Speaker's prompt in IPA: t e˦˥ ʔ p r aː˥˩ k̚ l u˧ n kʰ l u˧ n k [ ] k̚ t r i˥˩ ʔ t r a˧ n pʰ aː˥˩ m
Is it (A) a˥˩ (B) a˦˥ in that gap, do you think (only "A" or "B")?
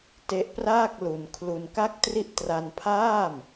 A